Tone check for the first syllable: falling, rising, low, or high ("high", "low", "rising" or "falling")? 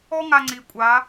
high